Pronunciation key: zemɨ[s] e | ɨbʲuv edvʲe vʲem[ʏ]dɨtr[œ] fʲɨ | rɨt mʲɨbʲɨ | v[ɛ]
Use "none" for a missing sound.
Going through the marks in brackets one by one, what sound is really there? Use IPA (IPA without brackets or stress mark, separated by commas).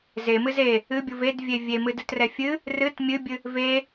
z, ɨ, ɛ, e